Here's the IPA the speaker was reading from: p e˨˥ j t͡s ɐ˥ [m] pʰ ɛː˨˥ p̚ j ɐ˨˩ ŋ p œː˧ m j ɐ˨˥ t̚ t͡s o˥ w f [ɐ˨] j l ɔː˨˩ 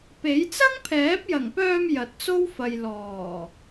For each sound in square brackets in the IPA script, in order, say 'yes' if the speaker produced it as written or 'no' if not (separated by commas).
no, yes